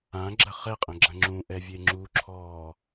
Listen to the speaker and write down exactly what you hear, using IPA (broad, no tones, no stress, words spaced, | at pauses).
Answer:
ãɡ͡ǁɐ χɛqʼɐ̃ɡ͡ǁɐ̃ ŋ͡ǁũʔɛvʲe ŋ͡ǁuǁʰɔː